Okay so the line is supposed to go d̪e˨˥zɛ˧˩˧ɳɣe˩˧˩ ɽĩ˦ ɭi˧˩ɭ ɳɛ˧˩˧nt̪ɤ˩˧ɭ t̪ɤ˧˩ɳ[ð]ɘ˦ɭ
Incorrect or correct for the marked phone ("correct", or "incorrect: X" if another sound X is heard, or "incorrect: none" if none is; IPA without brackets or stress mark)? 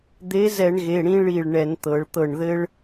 correct